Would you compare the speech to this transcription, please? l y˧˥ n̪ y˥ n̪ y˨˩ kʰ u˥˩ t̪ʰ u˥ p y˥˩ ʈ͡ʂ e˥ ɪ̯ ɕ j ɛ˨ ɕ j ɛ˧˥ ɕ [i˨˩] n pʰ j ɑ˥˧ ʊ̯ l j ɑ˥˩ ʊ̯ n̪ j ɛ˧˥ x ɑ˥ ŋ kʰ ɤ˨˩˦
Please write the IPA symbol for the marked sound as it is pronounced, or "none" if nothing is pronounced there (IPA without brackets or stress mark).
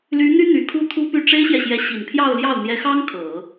i˨˩